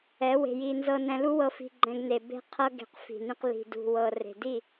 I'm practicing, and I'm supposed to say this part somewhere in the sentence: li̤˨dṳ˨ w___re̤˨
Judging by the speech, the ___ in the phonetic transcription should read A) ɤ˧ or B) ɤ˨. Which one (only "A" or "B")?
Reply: B